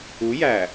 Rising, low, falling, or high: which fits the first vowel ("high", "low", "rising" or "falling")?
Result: rising